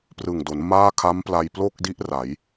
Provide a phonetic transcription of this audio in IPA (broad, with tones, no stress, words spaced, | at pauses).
prɯ˨˩ŋdo˩˦n maː˥˩ kʰa˦˥mpla˧j plo˥˩k̚di˦˥ʔ ra˩˦j